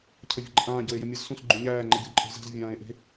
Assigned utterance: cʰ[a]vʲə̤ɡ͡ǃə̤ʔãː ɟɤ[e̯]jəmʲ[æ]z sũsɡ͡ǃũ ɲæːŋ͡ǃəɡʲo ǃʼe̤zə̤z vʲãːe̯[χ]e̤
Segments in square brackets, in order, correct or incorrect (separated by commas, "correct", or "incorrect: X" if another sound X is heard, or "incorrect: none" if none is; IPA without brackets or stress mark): incorrect: ə, correct, incorrect: ɜ, incorrect: ʔ